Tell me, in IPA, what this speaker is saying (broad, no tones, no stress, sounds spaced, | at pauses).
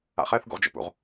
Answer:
a̰ χ ɛ θ ɡ ṵ ʁ d͡ʒ ɛ̰ p ṵ ʁ